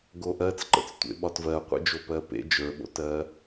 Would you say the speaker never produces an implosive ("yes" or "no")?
no